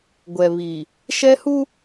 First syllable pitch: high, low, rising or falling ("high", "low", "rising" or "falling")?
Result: low